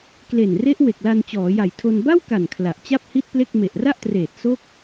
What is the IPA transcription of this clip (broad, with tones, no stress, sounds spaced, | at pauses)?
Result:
k l e˨˩ n r e˦˥ ʔ w e˨˩ k̚ l a˧ n t͡ɕ ɔː˩˦ j a˨˩ j tʰ o˧ n b a˥˩ w k a˨˩ n kʰ l a˨˩ ʔ t͡ɕ a˥˩ p̚ h i˥˩ t̚ p l e˥˩ k̚ m e˨˩ ʔ r a˥˩ ʔ t r eː˨˩ t̚ s o˥˩ k̚